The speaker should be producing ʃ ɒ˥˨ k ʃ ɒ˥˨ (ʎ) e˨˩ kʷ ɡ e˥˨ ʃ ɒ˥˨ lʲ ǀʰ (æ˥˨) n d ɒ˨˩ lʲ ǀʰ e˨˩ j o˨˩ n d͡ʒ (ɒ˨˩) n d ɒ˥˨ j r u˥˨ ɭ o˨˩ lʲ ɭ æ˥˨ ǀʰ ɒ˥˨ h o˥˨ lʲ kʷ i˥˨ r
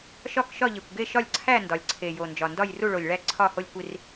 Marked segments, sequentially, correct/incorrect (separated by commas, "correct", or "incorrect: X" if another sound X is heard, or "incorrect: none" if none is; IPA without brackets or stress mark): correct, correct, correct